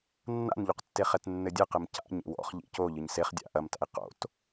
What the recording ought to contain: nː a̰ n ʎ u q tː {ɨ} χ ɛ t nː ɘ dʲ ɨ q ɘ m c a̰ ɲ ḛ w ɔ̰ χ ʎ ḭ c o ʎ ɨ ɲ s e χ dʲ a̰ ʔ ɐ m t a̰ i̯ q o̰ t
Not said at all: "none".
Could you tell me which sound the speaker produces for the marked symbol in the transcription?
e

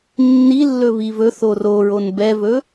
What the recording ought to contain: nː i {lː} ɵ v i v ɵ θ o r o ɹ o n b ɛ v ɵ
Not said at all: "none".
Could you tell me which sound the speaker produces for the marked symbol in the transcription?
lː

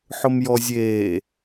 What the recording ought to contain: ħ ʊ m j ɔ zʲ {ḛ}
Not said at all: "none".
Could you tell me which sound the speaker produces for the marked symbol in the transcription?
e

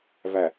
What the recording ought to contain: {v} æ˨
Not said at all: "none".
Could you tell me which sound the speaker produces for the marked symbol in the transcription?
v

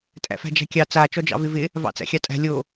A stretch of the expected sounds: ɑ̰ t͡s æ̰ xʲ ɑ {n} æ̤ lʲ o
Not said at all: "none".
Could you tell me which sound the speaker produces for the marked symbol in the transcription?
tʼ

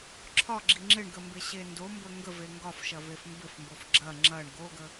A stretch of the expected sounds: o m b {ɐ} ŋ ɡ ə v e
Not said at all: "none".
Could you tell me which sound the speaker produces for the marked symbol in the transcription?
ə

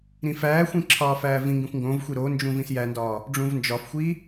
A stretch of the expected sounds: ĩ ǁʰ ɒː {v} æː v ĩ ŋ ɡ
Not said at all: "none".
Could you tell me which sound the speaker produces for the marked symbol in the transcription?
f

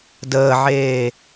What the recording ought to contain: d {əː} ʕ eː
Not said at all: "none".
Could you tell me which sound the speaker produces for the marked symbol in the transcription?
əː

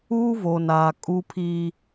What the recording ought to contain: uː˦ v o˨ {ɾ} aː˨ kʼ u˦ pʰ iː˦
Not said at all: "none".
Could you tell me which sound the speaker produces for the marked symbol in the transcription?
n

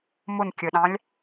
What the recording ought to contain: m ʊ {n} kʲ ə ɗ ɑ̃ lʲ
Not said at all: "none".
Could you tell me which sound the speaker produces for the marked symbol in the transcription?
n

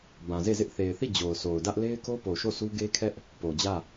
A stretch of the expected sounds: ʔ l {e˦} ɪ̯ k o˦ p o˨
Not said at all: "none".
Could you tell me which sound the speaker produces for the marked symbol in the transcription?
e˦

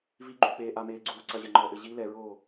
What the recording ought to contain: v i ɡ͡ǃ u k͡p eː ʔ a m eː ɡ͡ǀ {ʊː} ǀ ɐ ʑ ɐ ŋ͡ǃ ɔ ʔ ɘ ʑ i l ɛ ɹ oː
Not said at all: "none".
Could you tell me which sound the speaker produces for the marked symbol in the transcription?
uː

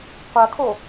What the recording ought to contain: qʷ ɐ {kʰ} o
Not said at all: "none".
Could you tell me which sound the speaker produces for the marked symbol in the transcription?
kʰ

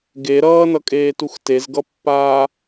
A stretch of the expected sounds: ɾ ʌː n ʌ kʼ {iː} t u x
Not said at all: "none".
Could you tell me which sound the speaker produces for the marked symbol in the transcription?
eː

